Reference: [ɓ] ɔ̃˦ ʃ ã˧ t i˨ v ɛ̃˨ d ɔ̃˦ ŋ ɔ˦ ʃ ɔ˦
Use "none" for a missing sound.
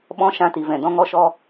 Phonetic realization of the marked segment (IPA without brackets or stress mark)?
ɓ